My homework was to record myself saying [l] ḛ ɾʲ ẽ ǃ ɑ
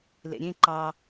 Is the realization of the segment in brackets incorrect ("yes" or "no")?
no